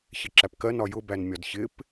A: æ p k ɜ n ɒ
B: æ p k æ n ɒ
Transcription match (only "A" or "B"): A